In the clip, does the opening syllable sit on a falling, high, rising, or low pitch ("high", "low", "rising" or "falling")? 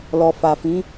low